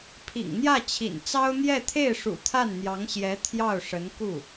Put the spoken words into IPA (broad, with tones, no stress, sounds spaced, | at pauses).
pʰ ḭ˨˩ ŋ n̪ j ä˥˩ t͡ɕʰ ḭ˨˩ n t͡s ɑ˥ ʊ̯ n̪ j ɛ˥˧ t̪ʰ e˥˩ ɪ̯ ʂ ṵ˨˩ t̪ʰ a˥˩ n n̪ j ɑ˧˥ ŋ ɕ j ɛ˧˥ t̪ʰ j ɑ˥˩ ʊ̯ ʂ ə˧˥ n k u˥˩